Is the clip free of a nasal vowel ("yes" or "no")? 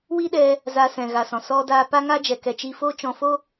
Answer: no